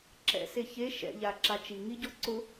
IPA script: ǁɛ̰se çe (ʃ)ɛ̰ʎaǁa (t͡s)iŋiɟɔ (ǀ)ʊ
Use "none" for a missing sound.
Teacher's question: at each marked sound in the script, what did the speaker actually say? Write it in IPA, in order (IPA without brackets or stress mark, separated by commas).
ʃ, t͡ʃ, ǀ